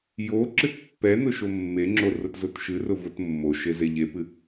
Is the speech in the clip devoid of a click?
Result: no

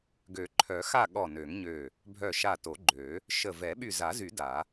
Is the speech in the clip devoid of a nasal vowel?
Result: yes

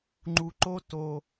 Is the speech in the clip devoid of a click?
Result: no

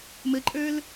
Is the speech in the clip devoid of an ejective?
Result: no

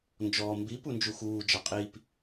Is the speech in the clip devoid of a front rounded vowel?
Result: yes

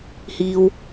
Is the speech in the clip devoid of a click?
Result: yes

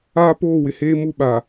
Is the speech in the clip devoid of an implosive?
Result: no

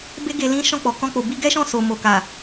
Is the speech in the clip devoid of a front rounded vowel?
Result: yes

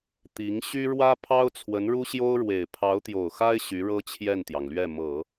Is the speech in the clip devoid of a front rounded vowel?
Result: no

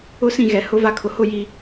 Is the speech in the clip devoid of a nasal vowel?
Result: no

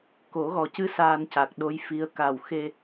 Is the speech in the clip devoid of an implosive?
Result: no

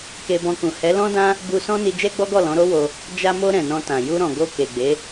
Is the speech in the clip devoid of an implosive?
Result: yes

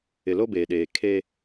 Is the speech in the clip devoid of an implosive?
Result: no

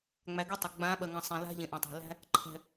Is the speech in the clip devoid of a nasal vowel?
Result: no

